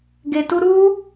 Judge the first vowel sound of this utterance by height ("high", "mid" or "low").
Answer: mid